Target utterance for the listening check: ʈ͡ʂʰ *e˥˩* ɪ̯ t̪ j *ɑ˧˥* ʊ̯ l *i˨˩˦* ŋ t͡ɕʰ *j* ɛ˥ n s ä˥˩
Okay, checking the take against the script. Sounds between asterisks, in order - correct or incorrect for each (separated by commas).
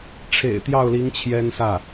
incorrect, incorrect, incorrect, correct